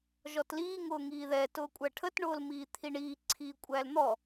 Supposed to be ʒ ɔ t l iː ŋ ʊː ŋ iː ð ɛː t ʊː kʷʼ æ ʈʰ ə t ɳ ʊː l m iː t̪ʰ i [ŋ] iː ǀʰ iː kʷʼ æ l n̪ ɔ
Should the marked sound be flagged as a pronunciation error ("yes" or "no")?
yes